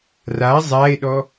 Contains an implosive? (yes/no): yes